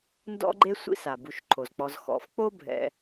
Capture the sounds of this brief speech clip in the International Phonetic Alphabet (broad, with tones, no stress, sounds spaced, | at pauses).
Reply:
n d ɔ̰˥ ɡ͡ǃ e˥ sʷ ḭ˦ s a˩ b u˨ ʃ ǃʰ o˩ z k͡p ɔ˨ z x ɔ̰˨ f k͡p o˦ bʱ ɛ̰˨